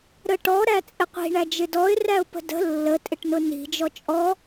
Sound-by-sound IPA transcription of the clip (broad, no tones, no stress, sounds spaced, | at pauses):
ɾ ə ʈ ɔ ɾ æ t͡sʼ ɪ qʷ i̤ ɳ æ d͡ʒ ɪ d ɔ ɪ̯ r æ ʊ̯ p ə̤ d ə̤ lː ə tʼ ɪ ʈ n ʊ n i̤ d͡ʒ ɔ t͡ʃʼ ɔ